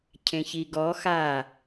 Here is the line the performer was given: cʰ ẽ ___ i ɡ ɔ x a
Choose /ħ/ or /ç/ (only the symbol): ç